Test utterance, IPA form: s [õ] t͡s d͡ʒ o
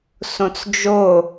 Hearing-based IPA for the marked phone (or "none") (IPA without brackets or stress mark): õ